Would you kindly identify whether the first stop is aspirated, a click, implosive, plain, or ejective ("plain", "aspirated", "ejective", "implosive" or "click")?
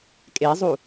ejective